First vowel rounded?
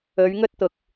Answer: yes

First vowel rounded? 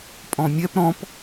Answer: yes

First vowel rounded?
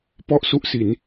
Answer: yes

